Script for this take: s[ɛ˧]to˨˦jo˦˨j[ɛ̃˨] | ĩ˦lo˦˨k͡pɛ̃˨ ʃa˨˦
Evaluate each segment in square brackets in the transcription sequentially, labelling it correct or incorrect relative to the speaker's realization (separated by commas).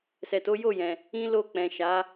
incorrect, correct